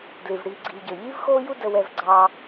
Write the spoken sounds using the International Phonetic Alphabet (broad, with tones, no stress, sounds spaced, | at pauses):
d l i˩ v ɽ iː˨ ɡ͡ǀ iː˨ ɟ əː˩ ʎ iː˥ v x oː˥ j u˥ d ə˨ w ɛ˨ v ɡ͡ǀ ɑ˨